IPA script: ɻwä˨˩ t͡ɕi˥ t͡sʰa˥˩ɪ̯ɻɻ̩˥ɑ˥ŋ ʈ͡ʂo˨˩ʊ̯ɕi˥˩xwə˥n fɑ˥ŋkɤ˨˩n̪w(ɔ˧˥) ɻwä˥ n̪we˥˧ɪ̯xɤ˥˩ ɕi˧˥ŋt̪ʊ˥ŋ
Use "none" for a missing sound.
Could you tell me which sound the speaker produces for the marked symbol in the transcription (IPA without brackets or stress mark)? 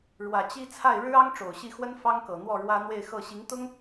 ɔ˥˩